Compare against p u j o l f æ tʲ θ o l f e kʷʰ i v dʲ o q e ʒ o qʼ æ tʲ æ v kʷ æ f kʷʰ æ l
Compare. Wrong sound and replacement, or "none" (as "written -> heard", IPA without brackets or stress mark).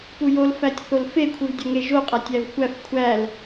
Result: q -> ŋ